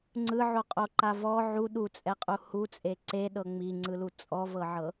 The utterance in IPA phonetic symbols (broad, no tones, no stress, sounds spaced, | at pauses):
ŋ͡ǀ ɯ ʕ o qʼ o ǃ a v ɔ ʕ u ɗ u t͡sʼ ɛ qʼ u h u t͡sʼ e ǀ e ɗ ɤ ŋ͡m i ŋ͡ǀ ɯ l u t͡sʼ ɔ v ɤ ʕ ɤ